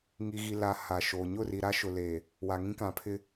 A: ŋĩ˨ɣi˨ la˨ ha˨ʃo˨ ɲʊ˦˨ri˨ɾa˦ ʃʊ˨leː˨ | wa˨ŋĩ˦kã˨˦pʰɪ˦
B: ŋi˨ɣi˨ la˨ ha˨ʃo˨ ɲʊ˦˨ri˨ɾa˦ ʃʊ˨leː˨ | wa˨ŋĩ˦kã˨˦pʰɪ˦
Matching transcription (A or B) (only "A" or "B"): B